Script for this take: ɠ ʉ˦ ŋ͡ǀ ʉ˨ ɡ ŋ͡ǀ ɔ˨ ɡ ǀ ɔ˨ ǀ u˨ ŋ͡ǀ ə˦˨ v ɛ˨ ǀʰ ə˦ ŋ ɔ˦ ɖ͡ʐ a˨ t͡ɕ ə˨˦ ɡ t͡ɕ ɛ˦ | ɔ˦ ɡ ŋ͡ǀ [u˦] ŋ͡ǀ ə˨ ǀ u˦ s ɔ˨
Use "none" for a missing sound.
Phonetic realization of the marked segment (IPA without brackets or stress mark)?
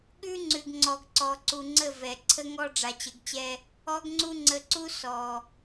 u˦